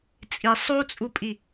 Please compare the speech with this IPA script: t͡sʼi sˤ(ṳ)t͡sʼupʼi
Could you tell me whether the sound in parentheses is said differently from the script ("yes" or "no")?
yes